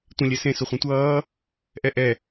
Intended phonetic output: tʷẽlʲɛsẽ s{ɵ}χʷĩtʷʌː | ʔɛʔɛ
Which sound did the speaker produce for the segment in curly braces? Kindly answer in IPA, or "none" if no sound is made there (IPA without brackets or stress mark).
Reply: ʊ